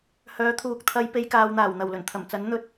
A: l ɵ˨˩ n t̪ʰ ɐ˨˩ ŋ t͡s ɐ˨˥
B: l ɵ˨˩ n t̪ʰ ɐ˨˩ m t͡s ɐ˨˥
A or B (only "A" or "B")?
B